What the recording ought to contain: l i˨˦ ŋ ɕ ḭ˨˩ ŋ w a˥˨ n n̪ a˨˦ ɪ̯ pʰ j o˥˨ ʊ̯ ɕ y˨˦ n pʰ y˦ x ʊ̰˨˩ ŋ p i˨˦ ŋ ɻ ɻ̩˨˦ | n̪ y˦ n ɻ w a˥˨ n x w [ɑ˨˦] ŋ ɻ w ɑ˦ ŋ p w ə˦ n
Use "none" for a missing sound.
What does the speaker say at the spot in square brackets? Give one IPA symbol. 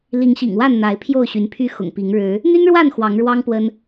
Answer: ɑ˨˦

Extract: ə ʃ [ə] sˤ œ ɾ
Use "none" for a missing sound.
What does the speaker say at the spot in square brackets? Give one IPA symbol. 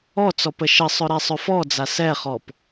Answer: ə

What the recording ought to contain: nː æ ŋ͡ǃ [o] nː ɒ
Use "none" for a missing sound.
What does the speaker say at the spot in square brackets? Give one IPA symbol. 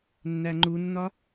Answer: u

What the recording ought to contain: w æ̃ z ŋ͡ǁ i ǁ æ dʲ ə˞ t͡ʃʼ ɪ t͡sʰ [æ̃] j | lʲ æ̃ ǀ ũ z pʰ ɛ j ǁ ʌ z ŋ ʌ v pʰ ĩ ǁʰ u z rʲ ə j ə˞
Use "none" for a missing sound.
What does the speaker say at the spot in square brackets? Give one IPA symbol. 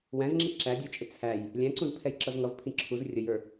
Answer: æ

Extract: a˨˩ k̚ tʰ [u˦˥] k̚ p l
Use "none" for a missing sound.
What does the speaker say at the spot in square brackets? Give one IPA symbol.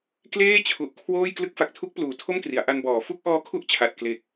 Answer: u˦˥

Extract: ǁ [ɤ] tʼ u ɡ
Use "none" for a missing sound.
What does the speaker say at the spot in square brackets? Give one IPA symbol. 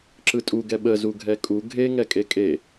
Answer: ɯ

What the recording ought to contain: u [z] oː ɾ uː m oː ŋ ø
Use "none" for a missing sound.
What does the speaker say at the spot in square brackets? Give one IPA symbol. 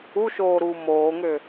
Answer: ʃ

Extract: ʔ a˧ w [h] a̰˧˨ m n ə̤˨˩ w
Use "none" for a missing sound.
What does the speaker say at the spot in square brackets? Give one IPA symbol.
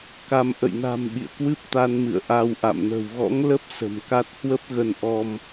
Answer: ʔ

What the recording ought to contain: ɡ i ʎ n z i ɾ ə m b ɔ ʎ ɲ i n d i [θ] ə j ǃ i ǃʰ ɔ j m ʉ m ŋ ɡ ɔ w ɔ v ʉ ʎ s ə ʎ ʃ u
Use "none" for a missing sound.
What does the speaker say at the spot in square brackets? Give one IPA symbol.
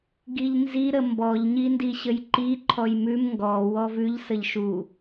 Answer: ɕ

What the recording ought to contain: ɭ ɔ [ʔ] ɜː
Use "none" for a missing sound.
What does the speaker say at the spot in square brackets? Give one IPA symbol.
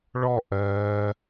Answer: ʔ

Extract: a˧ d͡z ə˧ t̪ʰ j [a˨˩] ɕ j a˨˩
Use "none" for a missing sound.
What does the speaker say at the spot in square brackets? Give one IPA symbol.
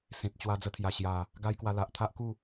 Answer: a˨˩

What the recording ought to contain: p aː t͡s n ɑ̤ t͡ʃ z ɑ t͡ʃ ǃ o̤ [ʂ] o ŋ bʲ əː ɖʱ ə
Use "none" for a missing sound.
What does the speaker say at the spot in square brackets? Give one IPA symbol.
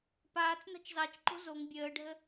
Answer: z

